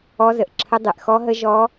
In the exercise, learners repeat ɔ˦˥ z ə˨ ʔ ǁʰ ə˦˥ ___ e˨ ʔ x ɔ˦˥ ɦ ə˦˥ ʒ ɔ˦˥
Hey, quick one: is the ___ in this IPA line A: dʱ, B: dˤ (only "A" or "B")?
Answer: B